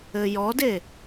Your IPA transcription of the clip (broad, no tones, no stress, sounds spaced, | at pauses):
ɘ j ɔ d e